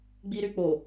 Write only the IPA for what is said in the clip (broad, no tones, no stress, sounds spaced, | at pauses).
ɡ͡b i ɾ y k͡p o